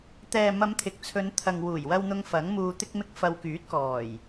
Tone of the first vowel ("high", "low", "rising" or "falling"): low